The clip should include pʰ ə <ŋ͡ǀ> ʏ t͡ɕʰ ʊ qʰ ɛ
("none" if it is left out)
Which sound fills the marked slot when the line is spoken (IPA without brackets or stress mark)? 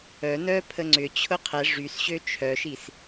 ŋ͡ǀ